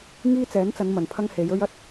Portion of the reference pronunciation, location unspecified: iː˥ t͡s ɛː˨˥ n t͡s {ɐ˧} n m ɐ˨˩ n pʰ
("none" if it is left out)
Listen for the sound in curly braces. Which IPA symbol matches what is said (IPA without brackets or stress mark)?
ɐ˨˧